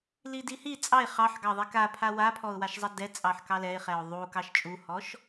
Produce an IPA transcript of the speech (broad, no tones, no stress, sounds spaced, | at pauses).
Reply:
l i d i h i t͡sʼ ɑ ɪ̯ χ ɑ ħ ɡ ɑ ðˤ ɛ k a pʰ a w a pʰ ɔ ʊ̯ w a ʃ zˤ ɐ d ɛ t͡sʼ ɑ ħ k ɑ l ɛ ɪ̯ χ ɛ ʊ̯ ðˤ u k ɑ ʃ t͡ʃʼ u h ɔ ʃ